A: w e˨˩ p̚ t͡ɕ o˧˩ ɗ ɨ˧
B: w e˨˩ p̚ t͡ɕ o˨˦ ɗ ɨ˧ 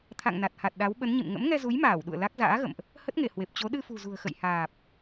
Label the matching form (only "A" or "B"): B